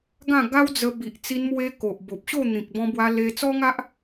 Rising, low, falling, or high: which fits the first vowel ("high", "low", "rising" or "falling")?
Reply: falling